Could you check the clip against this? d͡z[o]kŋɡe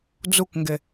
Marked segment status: incorrect: u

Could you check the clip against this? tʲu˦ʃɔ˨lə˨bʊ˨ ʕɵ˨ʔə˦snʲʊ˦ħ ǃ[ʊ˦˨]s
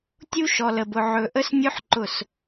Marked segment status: correct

